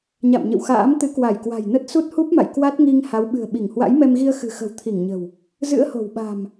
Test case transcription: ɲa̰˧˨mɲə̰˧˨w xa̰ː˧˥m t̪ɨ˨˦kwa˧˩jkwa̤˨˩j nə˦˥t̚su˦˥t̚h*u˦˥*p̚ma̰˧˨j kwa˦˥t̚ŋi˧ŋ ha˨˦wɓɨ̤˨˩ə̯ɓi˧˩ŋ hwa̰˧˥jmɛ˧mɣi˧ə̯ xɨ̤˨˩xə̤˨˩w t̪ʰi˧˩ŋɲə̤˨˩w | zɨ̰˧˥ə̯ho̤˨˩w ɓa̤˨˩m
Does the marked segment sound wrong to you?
no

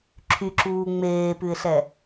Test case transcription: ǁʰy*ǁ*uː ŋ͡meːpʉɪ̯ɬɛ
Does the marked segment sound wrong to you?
no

